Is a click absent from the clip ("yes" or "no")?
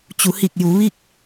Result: yes